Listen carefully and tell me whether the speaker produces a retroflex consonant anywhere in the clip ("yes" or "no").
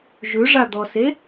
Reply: yes